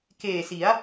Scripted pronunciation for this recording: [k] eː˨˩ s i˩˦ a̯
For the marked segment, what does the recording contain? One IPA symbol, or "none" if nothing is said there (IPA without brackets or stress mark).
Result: k